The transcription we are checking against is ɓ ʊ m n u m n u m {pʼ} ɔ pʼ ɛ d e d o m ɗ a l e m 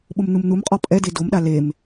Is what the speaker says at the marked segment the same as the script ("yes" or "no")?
no